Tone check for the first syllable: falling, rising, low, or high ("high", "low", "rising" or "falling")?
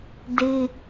high